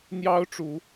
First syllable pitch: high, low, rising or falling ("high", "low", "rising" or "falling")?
high